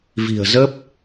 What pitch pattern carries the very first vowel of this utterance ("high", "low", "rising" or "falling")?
low